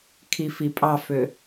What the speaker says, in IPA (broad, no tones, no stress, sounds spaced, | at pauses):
kʰ i f i pʼ ɑ f ø